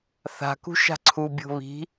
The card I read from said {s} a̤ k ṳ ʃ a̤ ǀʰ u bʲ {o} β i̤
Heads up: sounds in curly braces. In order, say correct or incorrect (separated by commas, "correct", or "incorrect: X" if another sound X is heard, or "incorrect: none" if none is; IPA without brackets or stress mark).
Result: incorrect: θ, incorrect: o̤